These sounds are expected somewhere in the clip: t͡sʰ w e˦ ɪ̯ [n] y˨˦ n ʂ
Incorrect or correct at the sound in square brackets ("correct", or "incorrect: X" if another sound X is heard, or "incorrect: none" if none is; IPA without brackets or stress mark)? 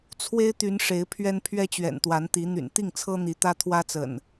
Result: incorrect: t̪